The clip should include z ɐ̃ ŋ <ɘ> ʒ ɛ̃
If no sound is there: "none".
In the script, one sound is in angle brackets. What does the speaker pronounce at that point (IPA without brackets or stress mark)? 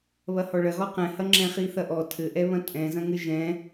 ɘ